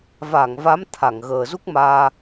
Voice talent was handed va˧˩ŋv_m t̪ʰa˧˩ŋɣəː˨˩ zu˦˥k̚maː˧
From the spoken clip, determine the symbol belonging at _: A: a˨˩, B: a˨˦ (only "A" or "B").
B